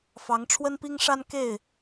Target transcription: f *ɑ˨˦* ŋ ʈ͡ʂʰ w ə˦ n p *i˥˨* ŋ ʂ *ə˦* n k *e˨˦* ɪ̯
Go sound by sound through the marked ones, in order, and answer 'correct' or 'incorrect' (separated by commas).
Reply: correct, incorrect, incorrect, incorrect